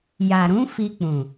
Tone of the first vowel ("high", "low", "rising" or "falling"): low